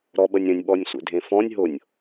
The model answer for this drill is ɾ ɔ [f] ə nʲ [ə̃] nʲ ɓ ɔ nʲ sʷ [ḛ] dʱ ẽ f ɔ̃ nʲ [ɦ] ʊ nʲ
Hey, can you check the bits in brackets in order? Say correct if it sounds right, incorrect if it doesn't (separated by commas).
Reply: incorrect, correct, correct, correct